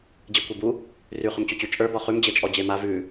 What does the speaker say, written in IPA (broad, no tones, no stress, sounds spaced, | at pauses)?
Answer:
d͡ʑ i kʷ e b u | r ʉ χ ʏ m t͡ɕ ʏ t͡ɕ ʉ t͡ʃʼ ə˞ b ɔ χ ʉ m d͡ʑ e t͡ʃʼ ɔ d͡ʑ e m a v ʉ